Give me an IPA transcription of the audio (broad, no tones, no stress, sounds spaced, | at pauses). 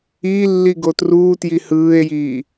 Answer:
i lː i ɡ o t r uː t j i h ɯː e̯ j iː